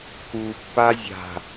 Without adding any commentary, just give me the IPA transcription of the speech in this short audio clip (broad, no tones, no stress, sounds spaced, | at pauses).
k u pː a zʲ a̤